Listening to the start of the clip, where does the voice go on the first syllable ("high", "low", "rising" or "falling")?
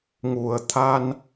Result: low